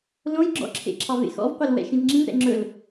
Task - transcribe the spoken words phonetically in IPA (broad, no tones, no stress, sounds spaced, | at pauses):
l õ j ɡ͡ǁ ɔ̰ ǁʰ ḛ ǁʰ ɑ v ḛ x ɔ̰ v qʷ e l w ɛ̰ ʃ ĩ v ŋ͡ǁ ĩ v ɾ ɛ̰ ŋ͡ǁ ɵ l